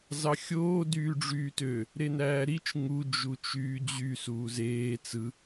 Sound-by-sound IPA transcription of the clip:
z ɑ xʲ oː d yː ɖ͡ʐ yː t ø | ɾ e n æː ɾ i t͡ʃ ŋ u d͡ʒ u t͡ʃ yː d͡ʑ y s uː z eː t͡s ɯ

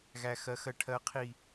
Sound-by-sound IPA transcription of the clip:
ɣ æ˦ x ɜ˦ x ɜ˦ ʈʰ ɜ˦ qʰ i˦

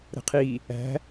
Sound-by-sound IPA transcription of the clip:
ɾ ə̤ qʰ i | æ̤

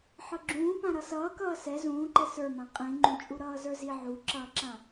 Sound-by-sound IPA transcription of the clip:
ħ ɤ ɡ͡ǁ ũː p ã ɾ ʌ s ʌː k ʌː s ɛ z ũː ǃ ɛ s ə˞ m ã qʼ ĩ ŋ͡ǃ ũ t͡ʃʼ u ɾ ʌː z ə˞ z i ʕ u ǁ ʌː ǁ ã

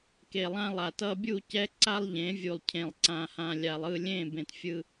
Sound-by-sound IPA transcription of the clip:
k e˨ lˠ ã˦ lˠ a˨ t ʌ˦ bʲ u˦˨ c ɛ˦ ǀ a˦ lˠ ʎ ẽ˨˦ vʲ u˨ lˠ cʰ ẽ˨ lˠ ǀ ã˨ h ã˨ lʲ a˨ lˠ ɯ˦˨ lʲ ẽ˦˨ b ẽ˨ t fʲ ɯ˦

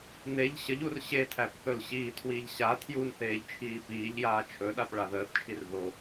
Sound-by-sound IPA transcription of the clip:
n e ʎ ɕ ə ʎ u r ɕ e tʰ æ p θ ɵ l ɕ iː tʰ w iː ʎ ɕ a tʰ j u n θ eː ʎ t͡ʃʰ iː p iː ʎ j aː t͡ʃʰ ɵ ɗ a p ɭ a ð əː θ t͡ʃʰ i r ð o

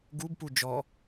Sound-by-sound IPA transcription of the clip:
ɡ u b p u d͡ʒ ɔ

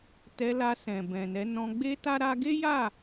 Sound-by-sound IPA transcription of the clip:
t ɛ˧ l a˧ s ɛ̃˨ b ɛ̃˨ n ɛ˨˦ n ɔ̃˧ ɡ͡b e˦ t a˦ ɾ a˧ ɡ e˦ j a˦˨

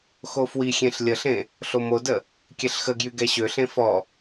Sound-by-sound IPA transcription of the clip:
x o f w i xʲ ẽ ɬ lʲ ə ɬ ẽ | ɬ o m o d ə | kʲ ɛ ɬ x ə ɡ j y ɡ ɛ ɕ ø ɬ ẽ f ɔ

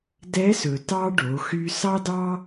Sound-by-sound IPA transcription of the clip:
d ɛ˧˥ s ɵ˩ t ɑ˧ ɖ o˩˧ x y˧ s ɑ˥ d ɑ˥

